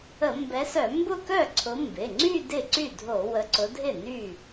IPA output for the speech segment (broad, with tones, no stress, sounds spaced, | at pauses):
ə˧˩˧ m b ɛ˨˦ s œ˧˩˧ m b ʊ˥˧ k œ˥˩ ǀʰ ʊ˨˦ m b ɪ˩˧˩ ŋ͡ǀ y˥˧ d ɪ˥˩ ǀ y˥˩ dʱ o˧˩˧ w ə˨˦ ǀ ʊ˨˦ dʱ ɪ˥˩ n y˥˩